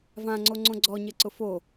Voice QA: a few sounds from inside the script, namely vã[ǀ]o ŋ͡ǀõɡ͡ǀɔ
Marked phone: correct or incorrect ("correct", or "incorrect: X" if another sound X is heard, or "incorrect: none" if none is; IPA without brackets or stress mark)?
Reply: incorrect: ŋ͡ǀ